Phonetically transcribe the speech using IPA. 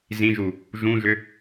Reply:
zĩʒu | ʒũʒʏ

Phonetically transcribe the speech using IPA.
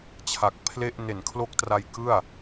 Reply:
t͡ɕʰa˨˩k̚pʰle˥˩ʔ ne˨˩nkʰlo˦˥k̚tra˧j kɯ˥˩a̯

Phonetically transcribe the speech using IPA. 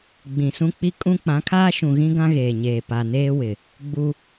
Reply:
ɡ͡bĩ˨sũ˦ k͡pi˦kʼũ˦ k͡pã˨˦kʰaː˦ ʃũ˨ɣĩ˦ ɡã˦ɣeː˨ɲeː˨ pa˨neː˦wɪ˨ | ɡ͡bu˦

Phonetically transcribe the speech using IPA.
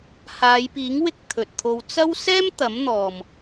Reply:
haː˨˧jpiː˨˥ŋwɪ˧k̚ t̪ʰɵ˨t̚t̪ʰo˧w t͡sɐ˥w sɛː˥mt̪ɐ˨˥mn̪ɔː˨m

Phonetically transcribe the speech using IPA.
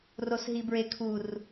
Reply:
rosɦibɹekʰur

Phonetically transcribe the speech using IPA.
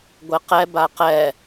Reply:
ɡʷeqɛ baqɛ

